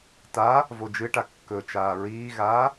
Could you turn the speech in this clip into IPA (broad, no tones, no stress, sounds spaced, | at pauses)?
t a | v o d͡ʒ ɨ ʈ a kː ɵ t͡ʃ aː ɹ iː ɣ aː